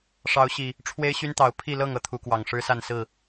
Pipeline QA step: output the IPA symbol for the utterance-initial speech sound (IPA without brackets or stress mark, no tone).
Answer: ʂ